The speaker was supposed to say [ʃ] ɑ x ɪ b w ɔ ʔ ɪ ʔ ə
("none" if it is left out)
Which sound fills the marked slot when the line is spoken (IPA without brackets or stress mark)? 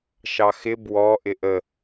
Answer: ʃ